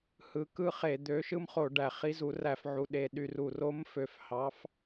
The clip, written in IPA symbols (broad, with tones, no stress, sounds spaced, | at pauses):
h ɯ˨˦ k ɯ˦ χ e˧˩˧ d̪ ø˨˦ ʃ ɯ˦ m χ o˧˩˧ ɖ æ˨˩ χ i˨˦ z u˧˩˧ r æ˧˩˧ f ʕ u˨˩ ɗ e˨˩ ɗ y˨˩ r u˨˩ r o˨˦ m f ø˨˩ f h ɑ˨˦ f